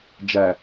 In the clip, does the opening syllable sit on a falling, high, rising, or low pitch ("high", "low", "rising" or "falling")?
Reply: low